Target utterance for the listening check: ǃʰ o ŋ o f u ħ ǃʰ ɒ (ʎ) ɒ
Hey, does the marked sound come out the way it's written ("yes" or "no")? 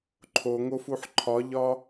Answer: yes